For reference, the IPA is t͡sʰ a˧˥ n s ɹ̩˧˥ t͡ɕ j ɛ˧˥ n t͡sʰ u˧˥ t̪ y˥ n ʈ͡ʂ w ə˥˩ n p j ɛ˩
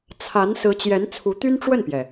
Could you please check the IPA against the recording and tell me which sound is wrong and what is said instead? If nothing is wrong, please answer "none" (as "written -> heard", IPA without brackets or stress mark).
none